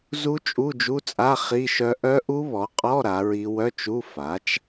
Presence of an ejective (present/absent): present